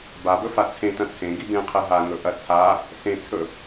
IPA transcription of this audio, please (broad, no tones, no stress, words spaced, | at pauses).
babɵfa t͡sʰẽtɐ̃ t͡sʰẽɡi bẽqʰe ɦaŋɵʔɐ t͡sʰa | sẽt͡sʰɵ